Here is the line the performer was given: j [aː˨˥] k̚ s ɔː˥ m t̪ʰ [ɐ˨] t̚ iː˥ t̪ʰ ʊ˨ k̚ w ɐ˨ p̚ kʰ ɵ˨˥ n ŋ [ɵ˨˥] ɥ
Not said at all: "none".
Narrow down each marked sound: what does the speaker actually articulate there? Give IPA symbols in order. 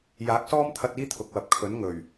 aː˨˥, ɐ˧, ɵ˨˩

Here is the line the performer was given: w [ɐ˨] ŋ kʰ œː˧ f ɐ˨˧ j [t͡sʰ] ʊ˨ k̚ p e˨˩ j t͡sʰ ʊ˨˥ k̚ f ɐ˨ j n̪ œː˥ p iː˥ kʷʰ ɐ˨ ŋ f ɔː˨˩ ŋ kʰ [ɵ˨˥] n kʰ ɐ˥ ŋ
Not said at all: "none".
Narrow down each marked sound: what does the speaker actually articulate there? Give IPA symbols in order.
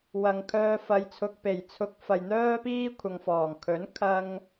ɐ˨, t͡sʰ, ɵ˨˥

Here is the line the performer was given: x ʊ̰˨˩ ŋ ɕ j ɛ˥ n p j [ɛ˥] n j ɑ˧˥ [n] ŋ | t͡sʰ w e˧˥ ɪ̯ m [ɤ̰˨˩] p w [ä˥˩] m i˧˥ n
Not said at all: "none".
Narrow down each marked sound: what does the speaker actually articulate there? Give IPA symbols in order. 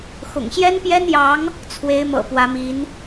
ɛ˥, none, ɤ̰˨˩, ä˧˥

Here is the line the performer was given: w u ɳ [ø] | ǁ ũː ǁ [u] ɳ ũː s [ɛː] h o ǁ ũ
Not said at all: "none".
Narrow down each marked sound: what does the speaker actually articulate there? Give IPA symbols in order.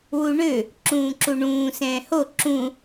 ø, u, ɛ̃ː

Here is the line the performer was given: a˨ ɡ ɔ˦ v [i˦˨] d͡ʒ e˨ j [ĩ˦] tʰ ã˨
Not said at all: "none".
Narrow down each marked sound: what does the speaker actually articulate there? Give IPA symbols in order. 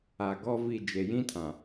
i˦˨, ĩ˦

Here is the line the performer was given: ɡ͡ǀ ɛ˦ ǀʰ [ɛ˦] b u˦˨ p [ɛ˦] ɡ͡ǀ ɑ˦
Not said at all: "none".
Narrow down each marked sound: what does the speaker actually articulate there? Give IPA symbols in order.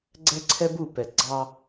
ɛ˦, ɛ˨

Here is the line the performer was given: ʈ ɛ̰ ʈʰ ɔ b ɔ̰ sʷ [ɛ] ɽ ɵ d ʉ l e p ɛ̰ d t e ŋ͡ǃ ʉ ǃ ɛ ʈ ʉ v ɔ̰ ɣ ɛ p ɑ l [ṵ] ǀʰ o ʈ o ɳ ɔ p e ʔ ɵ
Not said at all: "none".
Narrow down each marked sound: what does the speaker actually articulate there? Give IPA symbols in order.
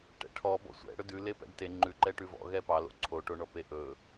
ɛ̰, o̰

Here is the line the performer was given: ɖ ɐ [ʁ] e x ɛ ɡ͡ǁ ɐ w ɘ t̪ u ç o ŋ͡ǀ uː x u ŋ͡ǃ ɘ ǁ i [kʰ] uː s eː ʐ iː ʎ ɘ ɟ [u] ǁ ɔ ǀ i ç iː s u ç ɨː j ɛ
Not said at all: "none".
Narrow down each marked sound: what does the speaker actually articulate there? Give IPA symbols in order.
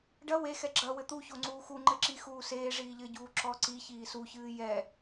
w, x, uː

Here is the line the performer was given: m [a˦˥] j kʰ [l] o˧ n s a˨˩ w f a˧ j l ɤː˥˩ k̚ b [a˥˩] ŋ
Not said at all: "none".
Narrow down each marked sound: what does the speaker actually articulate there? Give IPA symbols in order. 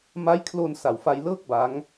a˦˥, l, a˦˥

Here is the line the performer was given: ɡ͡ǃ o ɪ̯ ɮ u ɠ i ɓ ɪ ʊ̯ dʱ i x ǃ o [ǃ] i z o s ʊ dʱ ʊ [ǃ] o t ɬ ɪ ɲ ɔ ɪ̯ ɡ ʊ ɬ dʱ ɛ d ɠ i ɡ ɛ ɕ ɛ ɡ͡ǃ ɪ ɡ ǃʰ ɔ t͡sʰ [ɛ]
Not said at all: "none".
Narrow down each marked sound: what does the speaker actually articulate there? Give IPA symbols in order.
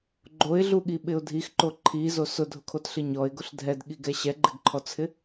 ǃʰ, kʰ, ɪ

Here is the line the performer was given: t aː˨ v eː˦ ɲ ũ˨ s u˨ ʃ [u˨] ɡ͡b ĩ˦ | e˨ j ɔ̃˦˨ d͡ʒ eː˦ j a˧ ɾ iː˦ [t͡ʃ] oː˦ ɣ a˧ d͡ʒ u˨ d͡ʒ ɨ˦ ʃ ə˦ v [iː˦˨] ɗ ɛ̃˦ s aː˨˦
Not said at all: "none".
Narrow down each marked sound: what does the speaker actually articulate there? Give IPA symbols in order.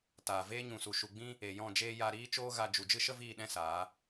u˨, t͡ʃ, iː˦˨

